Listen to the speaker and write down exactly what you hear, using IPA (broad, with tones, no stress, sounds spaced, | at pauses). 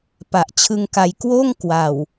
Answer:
p a˨˩ ʔ t͡ɕʰ ɯ˧ ŋ k a˧ j k w oː˥˩ ŋ k w a˨˩ w